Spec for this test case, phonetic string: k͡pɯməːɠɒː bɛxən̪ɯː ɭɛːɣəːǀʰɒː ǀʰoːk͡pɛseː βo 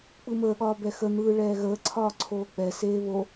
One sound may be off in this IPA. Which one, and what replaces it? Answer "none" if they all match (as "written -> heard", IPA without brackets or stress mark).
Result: none